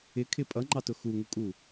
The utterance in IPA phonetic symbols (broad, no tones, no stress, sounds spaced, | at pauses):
ɪ kʰ ɪ pʼ ʌ ŋ͡ǃ ɑ t ʊ x u ŋ u kʼ u